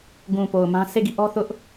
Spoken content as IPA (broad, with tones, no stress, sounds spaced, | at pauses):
ɡ ũ˨ p o˨ ʊ̯ m ã˦ sʰ e˦˨ ɡ i˦˨ ʔ ɔ˦ θ ʊ˦ ʔ